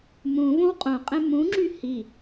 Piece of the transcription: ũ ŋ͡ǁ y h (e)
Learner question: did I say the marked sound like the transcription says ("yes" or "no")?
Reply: no